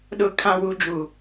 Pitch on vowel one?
low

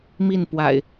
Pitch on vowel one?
falling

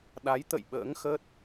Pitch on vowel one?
rising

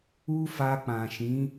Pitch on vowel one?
high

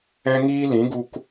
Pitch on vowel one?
high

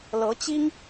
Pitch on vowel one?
rising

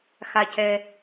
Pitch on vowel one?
low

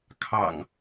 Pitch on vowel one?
low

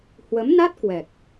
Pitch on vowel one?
rising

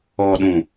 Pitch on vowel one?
low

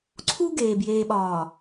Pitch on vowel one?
high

